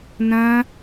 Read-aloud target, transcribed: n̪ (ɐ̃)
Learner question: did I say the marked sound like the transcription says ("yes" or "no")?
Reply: yes